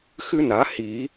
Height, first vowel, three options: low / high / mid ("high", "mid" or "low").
high